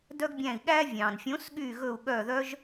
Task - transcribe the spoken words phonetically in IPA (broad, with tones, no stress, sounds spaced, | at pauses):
d œ˥ ɡ bʲ æ̃˦˨ i̯ ɠ æ˥ vʲ ɑ̃˩ n fʲ õ˨˥ s ɠ y˦˨ ɣ ɵ˦˨ u̯ ɠ œ˦˨ ð œ˥ ʒ